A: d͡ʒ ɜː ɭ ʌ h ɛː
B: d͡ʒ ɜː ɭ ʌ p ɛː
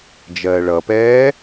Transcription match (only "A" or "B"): B